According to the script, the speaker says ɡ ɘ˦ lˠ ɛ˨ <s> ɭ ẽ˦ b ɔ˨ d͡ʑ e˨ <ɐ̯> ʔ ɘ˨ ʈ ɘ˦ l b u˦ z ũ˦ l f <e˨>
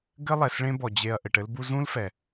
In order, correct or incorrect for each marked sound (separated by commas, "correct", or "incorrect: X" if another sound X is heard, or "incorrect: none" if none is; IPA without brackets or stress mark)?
correct, correct, incorrect: ɛ˨